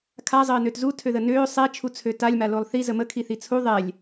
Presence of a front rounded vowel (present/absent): present